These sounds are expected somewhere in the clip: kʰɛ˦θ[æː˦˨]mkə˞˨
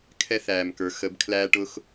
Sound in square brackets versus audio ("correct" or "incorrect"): incorrect